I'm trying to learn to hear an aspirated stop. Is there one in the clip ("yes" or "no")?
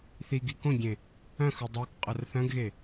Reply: no